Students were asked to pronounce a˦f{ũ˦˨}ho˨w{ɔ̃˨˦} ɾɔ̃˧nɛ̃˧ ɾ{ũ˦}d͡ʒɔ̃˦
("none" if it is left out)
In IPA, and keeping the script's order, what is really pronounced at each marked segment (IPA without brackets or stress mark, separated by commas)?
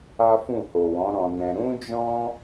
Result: ũ˦˨, ɔ̃˨˦, ũ˦